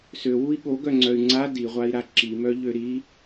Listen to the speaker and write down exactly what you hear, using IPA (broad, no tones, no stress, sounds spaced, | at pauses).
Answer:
s ø w u i̯ ɠ o ɡ œ ŋ͡ǀ œ y̯ ŋ͡ǀ a d i ʁʷ a i̯ ɾ a ǁ i m œ ʎ ø ɾ i